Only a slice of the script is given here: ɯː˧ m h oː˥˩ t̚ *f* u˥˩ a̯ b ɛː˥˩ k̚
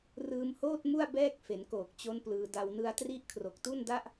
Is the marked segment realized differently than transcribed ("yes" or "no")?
yes